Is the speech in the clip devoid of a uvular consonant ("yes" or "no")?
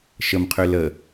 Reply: no